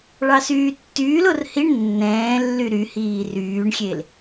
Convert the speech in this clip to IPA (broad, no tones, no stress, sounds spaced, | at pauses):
ɭ ɑ s yː tː yː l o r h i ɳ nː ɛ̃ː lː y ɾ y h iː r yː ɳ xʲ e l